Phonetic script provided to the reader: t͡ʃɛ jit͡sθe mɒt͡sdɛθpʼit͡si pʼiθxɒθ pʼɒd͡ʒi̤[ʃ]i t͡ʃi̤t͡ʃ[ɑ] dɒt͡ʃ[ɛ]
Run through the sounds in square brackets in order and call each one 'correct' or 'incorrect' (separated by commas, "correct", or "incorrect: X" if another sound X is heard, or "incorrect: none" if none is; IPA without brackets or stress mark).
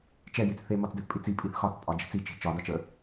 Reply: incorrect: t͡s, incorrect: ɒ, incorrect: ə